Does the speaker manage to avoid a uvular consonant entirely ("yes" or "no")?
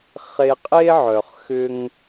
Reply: no